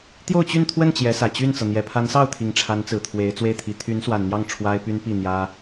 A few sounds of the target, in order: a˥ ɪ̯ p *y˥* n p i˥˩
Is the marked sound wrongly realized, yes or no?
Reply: no